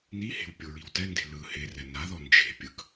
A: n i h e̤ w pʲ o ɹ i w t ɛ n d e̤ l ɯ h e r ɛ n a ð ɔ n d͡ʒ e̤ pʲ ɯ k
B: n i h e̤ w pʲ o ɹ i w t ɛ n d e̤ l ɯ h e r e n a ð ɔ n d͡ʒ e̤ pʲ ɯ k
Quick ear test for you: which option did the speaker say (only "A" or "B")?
A